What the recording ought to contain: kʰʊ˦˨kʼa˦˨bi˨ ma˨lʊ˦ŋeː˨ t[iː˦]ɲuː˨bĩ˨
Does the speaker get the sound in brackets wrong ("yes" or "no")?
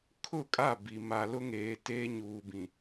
yes